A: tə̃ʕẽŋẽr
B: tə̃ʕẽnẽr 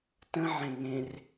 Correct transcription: A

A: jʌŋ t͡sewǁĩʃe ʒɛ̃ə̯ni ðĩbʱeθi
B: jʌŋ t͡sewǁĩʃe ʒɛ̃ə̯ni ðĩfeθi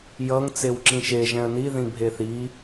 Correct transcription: A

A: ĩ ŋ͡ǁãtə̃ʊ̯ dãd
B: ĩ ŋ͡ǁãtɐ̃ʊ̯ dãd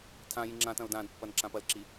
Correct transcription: B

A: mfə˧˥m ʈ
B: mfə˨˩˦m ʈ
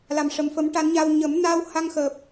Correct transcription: B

